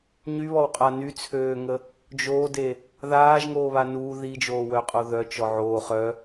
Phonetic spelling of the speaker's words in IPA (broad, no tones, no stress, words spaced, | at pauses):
ɲyβɔwqʼa nyt͡sʰøːŋə | d͡ʒoːde | ðaːʒŋoːβa nu ðid͡ʒoːwœqʼo ðœt͡ʃɔ ʕoː χœ